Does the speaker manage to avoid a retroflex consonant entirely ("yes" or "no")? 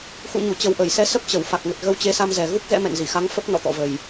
yes